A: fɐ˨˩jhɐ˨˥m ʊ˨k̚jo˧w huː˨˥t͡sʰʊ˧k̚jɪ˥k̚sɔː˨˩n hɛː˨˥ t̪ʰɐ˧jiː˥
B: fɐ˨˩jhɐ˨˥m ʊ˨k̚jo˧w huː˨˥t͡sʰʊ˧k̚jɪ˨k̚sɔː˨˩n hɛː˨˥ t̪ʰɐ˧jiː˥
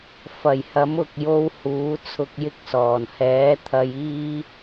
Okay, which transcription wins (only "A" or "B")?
A